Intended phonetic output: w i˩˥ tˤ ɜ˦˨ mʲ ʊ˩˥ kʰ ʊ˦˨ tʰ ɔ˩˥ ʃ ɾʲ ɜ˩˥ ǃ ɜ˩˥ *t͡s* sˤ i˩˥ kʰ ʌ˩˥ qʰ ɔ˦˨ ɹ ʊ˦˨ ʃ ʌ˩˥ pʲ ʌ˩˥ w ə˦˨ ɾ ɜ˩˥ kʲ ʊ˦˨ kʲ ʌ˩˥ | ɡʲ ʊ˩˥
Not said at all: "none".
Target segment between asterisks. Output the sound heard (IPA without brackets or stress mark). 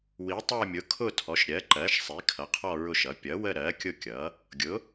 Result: ʃ